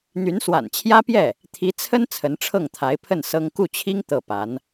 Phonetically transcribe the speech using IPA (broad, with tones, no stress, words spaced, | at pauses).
n̪y˧˥nswa̰˨˩nt͡ɕʰjä˥pjɛ˥˩ | t̪ʰi˧˥t͡sʰə˥n t͡sʰə˧˥nʈ͡ʂʰɤ˥˩ŋt̪ʰa˧˥ɪ̯ pʰə˥˩n sɤ˥ŋ ku˥˩t͡ɕʰi˥ŋ t̪ɤ˥˩pa˧˥n